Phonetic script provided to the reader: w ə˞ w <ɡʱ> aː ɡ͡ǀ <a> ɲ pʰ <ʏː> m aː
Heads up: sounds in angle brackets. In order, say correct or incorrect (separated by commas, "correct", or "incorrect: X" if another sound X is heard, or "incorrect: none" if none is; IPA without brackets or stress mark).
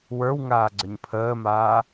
incorrect: ŋ, incorrect: ə, incorrect: əː